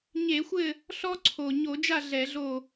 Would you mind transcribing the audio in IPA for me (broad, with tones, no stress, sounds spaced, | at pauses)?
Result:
ɲ e˧˩˧ xʷ ɘ˦˨ | ɬ ɔ˦ ǀʰ o˨˩ ɲ o˧˩˧ d͡ʒ a˦˨ ɮ ɛ˧˩˧ ɮ o˦˨